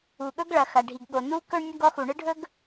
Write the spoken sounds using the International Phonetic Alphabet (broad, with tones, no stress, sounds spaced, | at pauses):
u˩ ɠ ɵ˥ ɡ ɭ ɐ˩ x ɐ˩ ɖʱ i˩ ɡ ɠ o˩ n u˥ k ɵ˥ ɳ nʲ ɐ˥ ɡ ɔ˥ x u˩ ɳ ɨ˥ ɖʱ ɵ˥ ɡ